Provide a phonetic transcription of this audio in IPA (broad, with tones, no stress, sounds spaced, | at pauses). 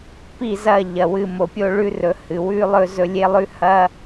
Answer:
p i˦˨ z ɐ˦˨ ʎ ɐ˨ w ɨ˦˨ m o˨ pʲ o˦ ɭ ʉ˦ r ɵ˨˦ h ɨ˨ w ʉ˦ lˠ ɵ˦ z ɵ˦ lʲ e˦ lˠ ʉ˦ h ɐ˦